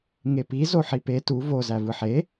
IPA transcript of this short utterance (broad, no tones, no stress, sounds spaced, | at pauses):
ŋ e p i z o ħ i p e t u v o z æ v ɯ ħ e